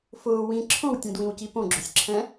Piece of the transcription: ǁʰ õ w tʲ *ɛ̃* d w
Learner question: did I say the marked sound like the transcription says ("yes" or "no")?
yes